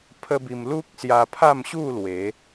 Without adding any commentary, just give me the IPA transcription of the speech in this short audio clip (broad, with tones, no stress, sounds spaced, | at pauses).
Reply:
pʰ ə˦ b i˧ m l u˦ k̚ s j a˧ pʰ a˥˧ m ɕ u˥˧ l w e˨˦